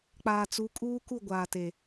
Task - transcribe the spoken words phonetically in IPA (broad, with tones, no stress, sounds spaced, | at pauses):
k͡p aː˨ t͡s u˨˦ kʼ uː˦ k u˦˨ ɡʷ aː˨ t e˨